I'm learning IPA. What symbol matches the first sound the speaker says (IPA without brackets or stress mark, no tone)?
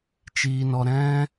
t͡ʃ